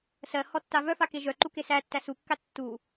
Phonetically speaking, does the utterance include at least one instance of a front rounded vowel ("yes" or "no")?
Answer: yes